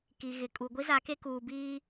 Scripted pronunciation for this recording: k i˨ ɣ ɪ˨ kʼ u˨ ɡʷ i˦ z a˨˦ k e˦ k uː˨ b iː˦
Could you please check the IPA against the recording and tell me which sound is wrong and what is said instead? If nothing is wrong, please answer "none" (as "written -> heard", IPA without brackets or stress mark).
none